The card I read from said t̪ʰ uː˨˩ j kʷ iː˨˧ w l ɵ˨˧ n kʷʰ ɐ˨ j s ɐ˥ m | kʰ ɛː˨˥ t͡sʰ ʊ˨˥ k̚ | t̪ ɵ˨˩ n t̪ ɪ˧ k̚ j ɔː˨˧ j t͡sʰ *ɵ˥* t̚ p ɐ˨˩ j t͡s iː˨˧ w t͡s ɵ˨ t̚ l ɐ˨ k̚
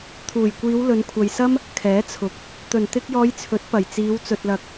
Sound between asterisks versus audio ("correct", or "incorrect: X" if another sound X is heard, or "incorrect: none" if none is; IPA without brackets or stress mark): incorrect: ɵ˨˥